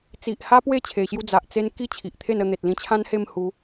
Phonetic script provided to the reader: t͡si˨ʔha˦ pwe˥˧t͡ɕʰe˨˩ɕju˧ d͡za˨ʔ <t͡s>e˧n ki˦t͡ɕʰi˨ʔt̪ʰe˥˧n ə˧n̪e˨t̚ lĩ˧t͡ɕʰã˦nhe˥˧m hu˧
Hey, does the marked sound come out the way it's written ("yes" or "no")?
yes